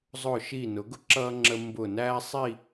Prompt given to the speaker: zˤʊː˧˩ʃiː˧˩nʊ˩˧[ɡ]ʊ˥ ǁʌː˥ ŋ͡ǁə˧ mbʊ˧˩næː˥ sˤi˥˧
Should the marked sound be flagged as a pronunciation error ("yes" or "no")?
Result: no